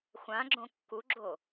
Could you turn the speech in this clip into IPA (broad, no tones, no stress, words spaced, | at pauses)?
xʷãɡ͡ǁõ kːuɡ͡ǁo